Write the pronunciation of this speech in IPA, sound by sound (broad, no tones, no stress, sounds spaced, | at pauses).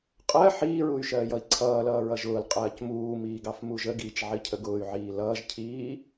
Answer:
qʼ ɜ ħ iː ɹ u y̯ ʃ ɜː j ʌ i̯ ǀʰ ʌː l ʌː ɹ ʌ ʒ ʊː l qʼ ɜː c m uː m iː ɡ ɑ f m u ʒ ə ɡ iː t͡ʃ ʕ i cʰ ə ɡ ʊː y̯ ʕ iː l ʌː ʒ cʰ iː